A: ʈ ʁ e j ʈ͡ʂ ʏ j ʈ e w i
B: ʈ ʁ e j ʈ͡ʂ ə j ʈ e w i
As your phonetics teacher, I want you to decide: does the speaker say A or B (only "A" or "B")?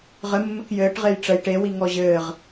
B